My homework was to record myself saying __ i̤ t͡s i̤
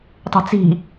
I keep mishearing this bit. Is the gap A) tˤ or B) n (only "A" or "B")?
A